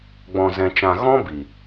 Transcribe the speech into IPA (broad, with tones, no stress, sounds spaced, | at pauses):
ɡ͡b ɔ̃˧ z ɛ̃˧ t͡ʃ ã˧ ɣ ɔ̃˦ b i˨